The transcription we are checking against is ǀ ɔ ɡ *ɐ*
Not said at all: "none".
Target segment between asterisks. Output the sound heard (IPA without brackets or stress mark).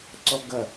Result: ɐ